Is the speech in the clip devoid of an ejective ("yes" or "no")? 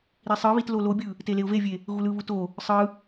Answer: yes